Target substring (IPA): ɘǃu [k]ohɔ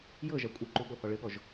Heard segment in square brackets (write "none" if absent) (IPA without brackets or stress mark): ɠ